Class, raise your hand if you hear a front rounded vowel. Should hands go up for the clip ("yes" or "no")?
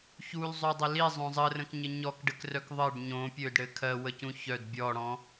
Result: yes